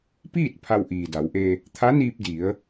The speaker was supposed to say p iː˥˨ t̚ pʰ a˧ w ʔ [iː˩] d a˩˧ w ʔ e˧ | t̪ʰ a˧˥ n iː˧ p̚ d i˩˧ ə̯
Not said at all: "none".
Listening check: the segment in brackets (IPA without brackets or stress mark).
iː˩